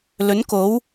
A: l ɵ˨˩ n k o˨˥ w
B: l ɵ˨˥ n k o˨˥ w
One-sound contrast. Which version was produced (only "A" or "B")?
B